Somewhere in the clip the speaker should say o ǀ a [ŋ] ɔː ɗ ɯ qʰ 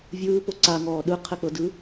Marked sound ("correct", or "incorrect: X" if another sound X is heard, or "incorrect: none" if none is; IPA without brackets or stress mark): correct